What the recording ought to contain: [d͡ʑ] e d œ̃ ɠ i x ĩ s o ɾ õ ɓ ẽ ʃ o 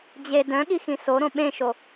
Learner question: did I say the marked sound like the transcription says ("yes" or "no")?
yes